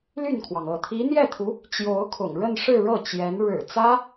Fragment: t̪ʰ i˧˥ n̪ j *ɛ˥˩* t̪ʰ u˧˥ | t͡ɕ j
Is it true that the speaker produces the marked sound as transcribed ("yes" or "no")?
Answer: yes